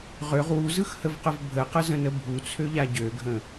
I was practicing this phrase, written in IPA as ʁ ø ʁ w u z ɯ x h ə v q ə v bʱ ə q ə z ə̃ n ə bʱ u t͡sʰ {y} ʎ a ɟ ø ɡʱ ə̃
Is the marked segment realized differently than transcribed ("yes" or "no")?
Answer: yes